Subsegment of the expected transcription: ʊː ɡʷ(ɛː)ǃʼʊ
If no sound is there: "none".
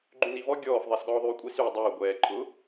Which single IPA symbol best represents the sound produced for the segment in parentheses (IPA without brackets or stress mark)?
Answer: ɛː